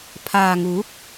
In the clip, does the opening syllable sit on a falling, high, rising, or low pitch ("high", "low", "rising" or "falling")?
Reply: low